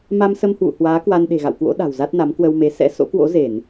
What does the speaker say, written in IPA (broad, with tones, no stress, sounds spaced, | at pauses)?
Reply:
m a˧ m s ə˧ m h w ṵ˧˨ h w aː˨˦ k w a˧ n ɗ e̤˨˩ ɣ a̰˧˨ w k w o̰˧˥ ɗ a̤˨˩ w z a˦˥ t̚ n a˨˦ m k w ə˧ w m e˨˦ s ɛ̰˧˥ s o̰˧˥ k w o̰˧˥ z e˧˩˨ n